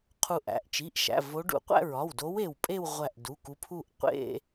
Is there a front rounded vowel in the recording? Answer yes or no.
no